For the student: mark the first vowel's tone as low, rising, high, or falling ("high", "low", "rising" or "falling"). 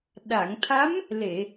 low